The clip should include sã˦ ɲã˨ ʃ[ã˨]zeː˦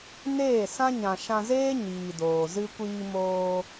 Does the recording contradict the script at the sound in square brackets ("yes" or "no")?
yes